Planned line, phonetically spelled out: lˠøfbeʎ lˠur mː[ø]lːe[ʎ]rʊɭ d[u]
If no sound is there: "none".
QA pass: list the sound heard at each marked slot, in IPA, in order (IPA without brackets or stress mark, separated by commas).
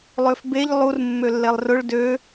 ø, lˠ, ø